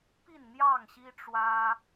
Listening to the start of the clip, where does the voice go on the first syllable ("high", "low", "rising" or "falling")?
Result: falling